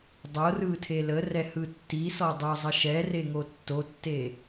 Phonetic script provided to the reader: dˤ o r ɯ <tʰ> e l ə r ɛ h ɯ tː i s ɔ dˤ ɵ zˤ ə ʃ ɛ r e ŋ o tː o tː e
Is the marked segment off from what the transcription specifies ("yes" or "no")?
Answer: no